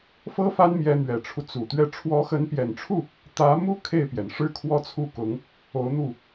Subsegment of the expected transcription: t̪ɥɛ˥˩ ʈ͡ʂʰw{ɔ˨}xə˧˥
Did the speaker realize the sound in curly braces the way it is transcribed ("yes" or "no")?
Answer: no